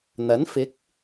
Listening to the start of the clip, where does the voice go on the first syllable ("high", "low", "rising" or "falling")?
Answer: rising